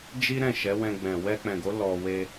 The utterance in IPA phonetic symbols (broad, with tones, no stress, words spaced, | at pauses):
d͡ʒi˦ ɾɛ̃˦˨ʃɛ˨˦wɛ̃˧ɡ͡bɛ̃˨ wɛ˧k͡pɛ̃˨ɡo˨˦ lɔ˧ we˧